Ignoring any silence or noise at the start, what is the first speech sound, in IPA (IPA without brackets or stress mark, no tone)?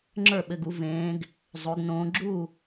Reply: ŋ͡ǁ